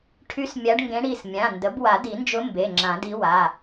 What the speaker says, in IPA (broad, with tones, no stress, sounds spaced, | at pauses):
ʈʰ y˧˥ s mʲ a˧˥ ɖ ŋ ɡ ẽ˧˥ ɽ i˩˧˩ s mʲ ã˩˧˩ n d ə˩˥ b w a˨˩˦ d i˨˩˦ n d͡ʒ ʊ˧˥ m b e˩˧˩ ŋ͡ǁ ã˨˩˦ d i˧˥ w a˩˧˩